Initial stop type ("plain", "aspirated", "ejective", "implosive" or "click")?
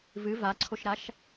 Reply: click